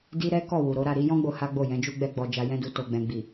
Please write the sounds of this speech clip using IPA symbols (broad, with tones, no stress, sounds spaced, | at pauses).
d i˦ ɾ ɛ˦ k ɔ˦˨ w u˨ ɾ o˨˦ ɾ a˦˨ ɾ i˨˦ j ɔ̃˦ ɡ͡b o˧ h a˦ ɡ͡b o˦˨ j ɛ̃˨˦ d͡ʒ u˦ ɡ͡b ɛ˧ ɡ͡b ɔ˧ d͡ʒ a˧ j ɛ̃˦ d u˧ t o˨ ɡ͡b ɛ̃˨ ɡ͡b i˨